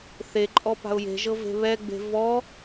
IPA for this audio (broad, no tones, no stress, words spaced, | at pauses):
θeǃʼɔ pa̤ʊ̯je̤ʒɤ ve̤βɛɡ͡be̤ vɔ